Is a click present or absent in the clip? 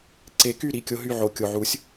present